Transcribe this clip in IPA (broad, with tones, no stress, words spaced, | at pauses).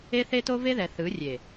e˦θe˦to˦ve˦ ðɛ˨θɯ˨˦ rʲe˨